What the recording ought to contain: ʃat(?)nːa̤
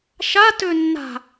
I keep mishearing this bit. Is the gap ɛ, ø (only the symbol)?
ø